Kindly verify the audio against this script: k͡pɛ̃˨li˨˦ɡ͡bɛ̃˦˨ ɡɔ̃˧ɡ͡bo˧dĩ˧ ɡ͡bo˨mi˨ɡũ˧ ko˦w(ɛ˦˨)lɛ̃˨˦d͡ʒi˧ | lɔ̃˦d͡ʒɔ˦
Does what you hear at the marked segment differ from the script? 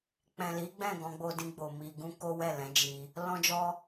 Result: no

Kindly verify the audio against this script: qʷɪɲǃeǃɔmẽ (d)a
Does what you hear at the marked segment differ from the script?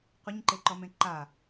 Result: yes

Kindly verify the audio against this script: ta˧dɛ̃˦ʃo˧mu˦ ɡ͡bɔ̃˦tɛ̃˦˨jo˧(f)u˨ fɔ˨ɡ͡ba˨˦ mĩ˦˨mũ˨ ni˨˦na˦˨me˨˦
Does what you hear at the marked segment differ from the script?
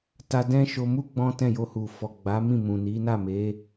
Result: yes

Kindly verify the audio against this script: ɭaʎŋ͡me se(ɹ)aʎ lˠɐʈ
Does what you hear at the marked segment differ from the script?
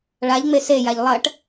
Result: yes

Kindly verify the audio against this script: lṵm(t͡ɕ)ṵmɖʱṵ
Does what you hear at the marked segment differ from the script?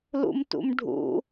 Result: yes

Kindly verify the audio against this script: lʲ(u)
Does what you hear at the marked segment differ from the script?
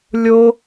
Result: yes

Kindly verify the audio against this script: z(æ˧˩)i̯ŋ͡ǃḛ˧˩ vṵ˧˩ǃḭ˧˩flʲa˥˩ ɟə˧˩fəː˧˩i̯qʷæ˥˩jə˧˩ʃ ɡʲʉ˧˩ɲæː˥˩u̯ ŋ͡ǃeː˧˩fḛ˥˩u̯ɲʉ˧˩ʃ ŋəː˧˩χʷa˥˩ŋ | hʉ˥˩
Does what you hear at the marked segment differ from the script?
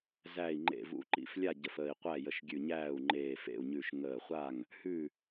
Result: no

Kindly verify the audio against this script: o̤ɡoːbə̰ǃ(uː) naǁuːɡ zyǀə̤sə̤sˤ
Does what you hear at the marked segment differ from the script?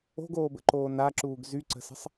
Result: yes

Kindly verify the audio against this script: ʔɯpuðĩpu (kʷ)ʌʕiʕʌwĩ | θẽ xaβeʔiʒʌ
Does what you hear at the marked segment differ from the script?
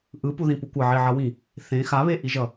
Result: no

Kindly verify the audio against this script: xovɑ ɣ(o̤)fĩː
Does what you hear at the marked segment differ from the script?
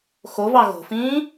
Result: no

